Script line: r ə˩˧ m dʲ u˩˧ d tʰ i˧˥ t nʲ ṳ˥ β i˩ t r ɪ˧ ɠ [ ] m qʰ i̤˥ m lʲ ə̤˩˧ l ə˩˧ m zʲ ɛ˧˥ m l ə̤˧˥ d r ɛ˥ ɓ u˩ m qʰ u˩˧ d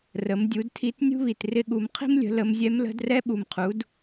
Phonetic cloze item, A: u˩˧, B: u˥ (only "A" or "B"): A